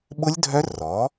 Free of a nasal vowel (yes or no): yes